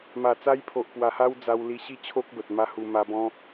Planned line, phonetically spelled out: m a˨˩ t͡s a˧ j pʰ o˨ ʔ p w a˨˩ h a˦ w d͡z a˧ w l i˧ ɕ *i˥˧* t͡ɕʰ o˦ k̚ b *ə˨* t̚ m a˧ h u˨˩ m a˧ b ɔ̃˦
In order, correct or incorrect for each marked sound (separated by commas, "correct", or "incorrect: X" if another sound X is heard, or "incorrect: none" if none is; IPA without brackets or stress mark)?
correct, correct